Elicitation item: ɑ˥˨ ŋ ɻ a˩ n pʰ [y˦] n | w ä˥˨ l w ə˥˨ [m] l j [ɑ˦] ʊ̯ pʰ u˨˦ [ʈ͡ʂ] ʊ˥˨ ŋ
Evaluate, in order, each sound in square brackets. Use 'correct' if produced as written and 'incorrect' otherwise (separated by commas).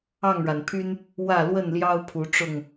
correct, incorrect, correct, correct